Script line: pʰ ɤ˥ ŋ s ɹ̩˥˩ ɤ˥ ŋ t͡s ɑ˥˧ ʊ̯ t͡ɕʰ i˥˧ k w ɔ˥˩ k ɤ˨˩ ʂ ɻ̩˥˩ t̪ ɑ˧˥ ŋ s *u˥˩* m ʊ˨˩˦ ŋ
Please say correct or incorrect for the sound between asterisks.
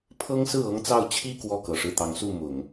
correct